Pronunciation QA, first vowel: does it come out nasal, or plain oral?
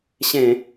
nasal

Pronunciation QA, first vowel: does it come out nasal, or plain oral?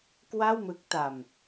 oral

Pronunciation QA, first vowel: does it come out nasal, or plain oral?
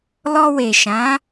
oral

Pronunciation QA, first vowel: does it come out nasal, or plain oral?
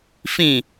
nasal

